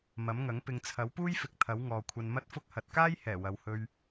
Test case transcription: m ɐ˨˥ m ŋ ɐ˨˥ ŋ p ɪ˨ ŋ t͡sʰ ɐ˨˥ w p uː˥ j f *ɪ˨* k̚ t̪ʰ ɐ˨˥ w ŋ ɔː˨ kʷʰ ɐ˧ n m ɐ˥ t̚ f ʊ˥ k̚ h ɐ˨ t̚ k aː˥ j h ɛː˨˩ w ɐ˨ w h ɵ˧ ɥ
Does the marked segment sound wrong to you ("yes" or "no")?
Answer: no